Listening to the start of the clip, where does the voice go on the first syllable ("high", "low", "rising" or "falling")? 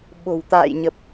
low